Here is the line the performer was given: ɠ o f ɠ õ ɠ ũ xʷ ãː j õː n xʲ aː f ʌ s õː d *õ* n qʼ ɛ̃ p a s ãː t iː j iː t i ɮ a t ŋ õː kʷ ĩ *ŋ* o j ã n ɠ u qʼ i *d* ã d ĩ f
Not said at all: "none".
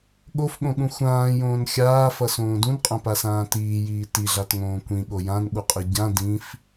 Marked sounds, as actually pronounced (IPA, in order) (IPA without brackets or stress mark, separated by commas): ũ, ɠ, ɟ